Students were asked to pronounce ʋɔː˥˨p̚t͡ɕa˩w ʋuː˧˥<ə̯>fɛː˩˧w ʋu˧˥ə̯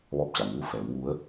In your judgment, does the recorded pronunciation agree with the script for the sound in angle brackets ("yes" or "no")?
no